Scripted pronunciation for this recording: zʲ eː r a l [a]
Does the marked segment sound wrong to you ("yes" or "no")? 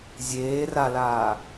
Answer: yes